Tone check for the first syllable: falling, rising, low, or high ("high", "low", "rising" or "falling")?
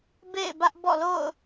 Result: falling